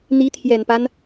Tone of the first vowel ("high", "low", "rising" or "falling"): rising